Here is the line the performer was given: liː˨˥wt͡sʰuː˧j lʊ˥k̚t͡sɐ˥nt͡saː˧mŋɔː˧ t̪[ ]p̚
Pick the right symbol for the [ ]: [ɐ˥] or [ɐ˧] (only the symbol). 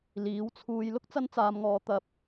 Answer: ɐ˧